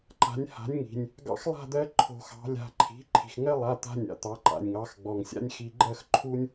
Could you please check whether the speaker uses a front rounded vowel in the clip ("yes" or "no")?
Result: no